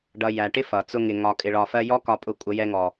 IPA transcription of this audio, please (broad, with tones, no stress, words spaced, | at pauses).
ɖʌ˧ jæ˨ʈɪ˦ fʌ˨ t͡sʊ˧ŋɪ˨ ŋɒ˧ kʼɪ˧ɭɒ˧fɜ˦ jɔ˦kɒ˧pʼʊ˧ kʷʼə˧jɛ˧ŋɔ˨